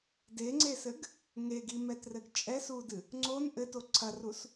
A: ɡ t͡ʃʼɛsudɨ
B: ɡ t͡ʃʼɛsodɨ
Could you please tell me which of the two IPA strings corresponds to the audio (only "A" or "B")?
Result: A